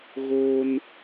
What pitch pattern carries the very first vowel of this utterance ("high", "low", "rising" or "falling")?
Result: high